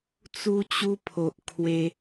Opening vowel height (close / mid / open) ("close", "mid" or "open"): close